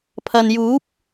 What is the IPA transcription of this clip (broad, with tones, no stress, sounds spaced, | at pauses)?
pʰ ɐ˨ n j uː˨˥ p̚